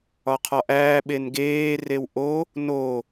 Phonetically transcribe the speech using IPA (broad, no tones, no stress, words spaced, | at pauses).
ɒqʰɒʔæː ɓenɡeː rewʔo | no